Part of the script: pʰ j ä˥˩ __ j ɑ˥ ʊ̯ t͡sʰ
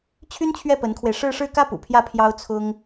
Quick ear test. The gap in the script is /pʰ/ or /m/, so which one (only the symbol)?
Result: pʰ